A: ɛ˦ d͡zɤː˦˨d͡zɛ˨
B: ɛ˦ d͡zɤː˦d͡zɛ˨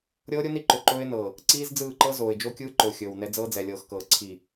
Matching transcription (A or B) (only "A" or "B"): B